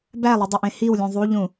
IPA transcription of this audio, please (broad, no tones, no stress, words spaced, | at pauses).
bælˠidˤeʔẽ hiwlʲũ ðˤuʎũ